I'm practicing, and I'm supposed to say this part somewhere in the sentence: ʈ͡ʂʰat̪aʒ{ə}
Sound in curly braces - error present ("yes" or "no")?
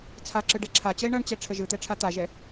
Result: yes